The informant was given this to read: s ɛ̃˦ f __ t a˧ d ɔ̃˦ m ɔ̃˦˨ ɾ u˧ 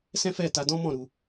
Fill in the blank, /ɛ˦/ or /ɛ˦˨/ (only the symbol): ɛ˦˨